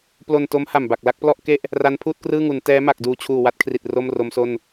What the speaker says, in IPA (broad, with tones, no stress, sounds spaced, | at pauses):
p l o˧ n t o˦˥ m h a˨˩ m b a˨˩ k̚ l a˥˩ k̚ p l ɔ˥˩ ʔ k e˥˩ ʔ | r a˦˥ n pʰ uː˥˩ t̚ k r ɯː˥˩ ŋ u˩˦ n t ɛː˦˥ m a˨˩ k̚ d uː˨˩ t͡ɕʰ uː˨˩ w a˦˥ t̚ kʰ r i˨˩ t̚ r o˥˩ m r o˦˥ m s o˥˩ n